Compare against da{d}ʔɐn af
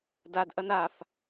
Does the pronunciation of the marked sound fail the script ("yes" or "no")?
no